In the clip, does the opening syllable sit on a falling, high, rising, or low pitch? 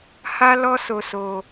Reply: high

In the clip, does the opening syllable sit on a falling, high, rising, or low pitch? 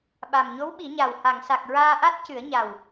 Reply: low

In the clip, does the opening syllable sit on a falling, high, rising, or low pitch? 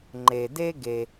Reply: low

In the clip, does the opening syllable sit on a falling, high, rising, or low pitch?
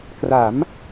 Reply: rising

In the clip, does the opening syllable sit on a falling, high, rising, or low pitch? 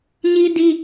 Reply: high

